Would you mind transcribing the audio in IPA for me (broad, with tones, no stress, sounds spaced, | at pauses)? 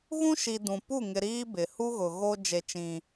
ɣ ũ˦ ʃ i˨ d ũ˨ p u˦˨ ŋ ɪ˨ ɾ iː˦ b ɪ˨ h u˦ ɣ ʊ˨ ɣ o˦ d͡ʒ e˦ t͡ʃ ĩ˦